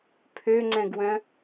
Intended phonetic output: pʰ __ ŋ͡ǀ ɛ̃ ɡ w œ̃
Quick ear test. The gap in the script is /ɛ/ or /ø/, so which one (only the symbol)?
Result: ø